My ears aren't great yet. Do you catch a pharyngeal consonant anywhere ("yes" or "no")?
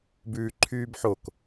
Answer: yes